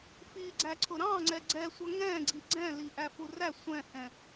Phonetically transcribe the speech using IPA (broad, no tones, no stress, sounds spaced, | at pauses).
f i ɡ͡ǀ æ ǀʰ ʊ ɾ ɑ̃ ŋ͡ǀ ɛ ɡ͡ǀ ɛ sʷ ʌ ŋ ɛ̃ ɡ͡ǀ i ɡ͡ǀ ɛ̃ l i ʔ æ f u r æ sʷ ɛ̃ h ɛ̃